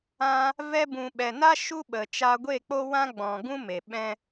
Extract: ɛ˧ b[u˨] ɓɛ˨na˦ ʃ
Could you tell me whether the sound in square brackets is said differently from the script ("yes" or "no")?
yes